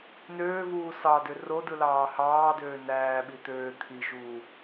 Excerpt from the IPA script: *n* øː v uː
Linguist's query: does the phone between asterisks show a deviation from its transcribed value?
no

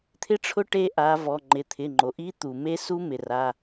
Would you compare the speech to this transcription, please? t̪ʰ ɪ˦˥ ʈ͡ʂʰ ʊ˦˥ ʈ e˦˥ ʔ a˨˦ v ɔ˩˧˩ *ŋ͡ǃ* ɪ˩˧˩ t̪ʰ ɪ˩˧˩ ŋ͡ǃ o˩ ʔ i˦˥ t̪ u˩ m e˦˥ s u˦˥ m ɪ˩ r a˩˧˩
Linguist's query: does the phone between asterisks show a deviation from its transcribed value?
no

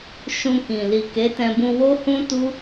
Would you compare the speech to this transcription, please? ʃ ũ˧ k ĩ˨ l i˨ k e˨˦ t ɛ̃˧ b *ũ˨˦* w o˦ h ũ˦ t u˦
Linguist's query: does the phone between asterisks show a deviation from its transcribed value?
yes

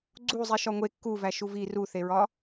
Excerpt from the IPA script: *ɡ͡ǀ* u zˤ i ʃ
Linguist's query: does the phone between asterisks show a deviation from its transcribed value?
no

